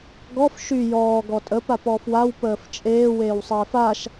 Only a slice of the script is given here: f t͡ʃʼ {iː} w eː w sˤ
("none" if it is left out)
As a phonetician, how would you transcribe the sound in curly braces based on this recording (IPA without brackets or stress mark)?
eː